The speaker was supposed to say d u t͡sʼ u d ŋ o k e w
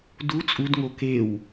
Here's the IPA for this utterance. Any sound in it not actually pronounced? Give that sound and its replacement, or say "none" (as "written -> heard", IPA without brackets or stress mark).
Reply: none